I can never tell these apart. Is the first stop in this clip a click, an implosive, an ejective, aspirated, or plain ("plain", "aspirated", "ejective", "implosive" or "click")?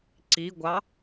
click